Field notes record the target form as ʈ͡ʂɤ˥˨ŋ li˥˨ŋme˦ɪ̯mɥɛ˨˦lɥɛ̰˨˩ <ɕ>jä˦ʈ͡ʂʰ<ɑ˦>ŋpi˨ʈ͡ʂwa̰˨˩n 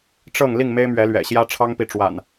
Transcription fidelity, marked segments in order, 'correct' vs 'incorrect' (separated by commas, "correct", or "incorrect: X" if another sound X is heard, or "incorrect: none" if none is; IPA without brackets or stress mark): correct, correct